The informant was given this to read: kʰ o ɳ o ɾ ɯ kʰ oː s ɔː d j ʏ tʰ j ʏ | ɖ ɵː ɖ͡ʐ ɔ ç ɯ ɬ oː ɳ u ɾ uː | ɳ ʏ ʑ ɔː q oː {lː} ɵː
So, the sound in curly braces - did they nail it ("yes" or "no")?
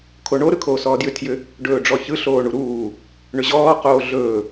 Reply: no